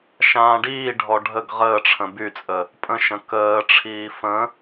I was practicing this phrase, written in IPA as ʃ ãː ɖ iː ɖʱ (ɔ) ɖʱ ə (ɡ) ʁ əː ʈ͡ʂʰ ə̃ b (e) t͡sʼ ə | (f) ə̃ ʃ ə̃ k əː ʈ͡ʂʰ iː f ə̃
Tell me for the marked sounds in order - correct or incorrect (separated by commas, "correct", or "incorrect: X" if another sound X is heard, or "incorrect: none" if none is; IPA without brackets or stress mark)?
correct, correct, incorrect: y, incorrect: pʼ